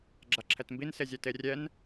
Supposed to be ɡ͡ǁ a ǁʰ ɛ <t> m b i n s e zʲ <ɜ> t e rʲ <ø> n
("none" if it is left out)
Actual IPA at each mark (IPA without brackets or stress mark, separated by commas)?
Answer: t, ɛ, ɛ